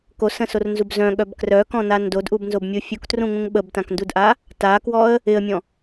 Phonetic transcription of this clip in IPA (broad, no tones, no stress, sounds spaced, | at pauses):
k o s ə̃ s o r n z u b z œ̃ ɠ œ b k r œ k ɔ̃ n a n d o d ʔ u b n z o b mʲ u fʲ u k t r ũ ŋ ũ ŋ ɓ ə b t ã k n d u d ʔ a | t a k w ɔ ə̯ | ɪ ə̯ mʲ ɔ̃